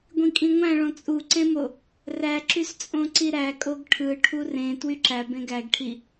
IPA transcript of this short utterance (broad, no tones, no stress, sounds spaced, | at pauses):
ɡʷ ĩ kʼ ĩ ŋʷ æ̃ ɭ õ t͡sʼ u ǀ ẽ m o | r æ ǁ y s t͡sʼ õ ǀ i ɾ æ kʼ o ɡ ʈʰ ɯ ʈʰ u r ẽ t w y ǁ æ b ẽ ɡ æ ɡ ʈʰ i